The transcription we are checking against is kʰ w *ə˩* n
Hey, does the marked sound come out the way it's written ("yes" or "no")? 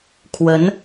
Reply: no